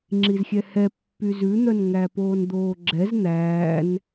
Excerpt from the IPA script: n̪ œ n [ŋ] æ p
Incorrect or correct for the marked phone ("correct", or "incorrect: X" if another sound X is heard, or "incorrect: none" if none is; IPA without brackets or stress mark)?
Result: correct